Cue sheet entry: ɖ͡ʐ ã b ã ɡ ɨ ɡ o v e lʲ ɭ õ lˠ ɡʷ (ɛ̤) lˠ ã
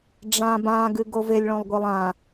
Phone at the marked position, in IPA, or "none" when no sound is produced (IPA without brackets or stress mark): ɛ